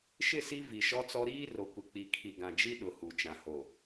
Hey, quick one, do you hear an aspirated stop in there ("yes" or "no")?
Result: yes